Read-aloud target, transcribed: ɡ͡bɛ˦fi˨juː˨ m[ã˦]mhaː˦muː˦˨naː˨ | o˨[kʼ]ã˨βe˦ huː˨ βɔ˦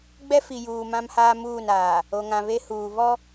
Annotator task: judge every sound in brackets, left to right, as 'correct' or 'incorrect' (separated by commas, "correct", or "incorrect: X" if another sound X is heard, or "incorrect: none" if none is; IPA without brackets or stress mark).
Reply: correct, incorrect: ŋ